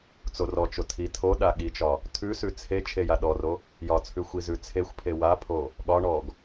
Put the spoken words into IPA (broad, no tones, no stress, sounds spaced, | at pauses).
t͡s o r ɔ t͡ʃ o tʰ i tʰ o ɗ a ɠ i t͡ʃ ɒ | tʰ ʉ s ʉ t͡sʰ e t͡ʃʰ e j a ɗ ɔ r o | j ɒ t͡sʰ ʉ xʷ i z ʉ t͡sʰ e xʷ pʰ e w a pʰ o | ɠ ɒ ɳ ɔ ɡ